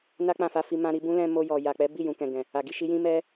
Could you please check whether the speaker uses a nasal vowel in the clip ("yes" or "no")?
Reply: yes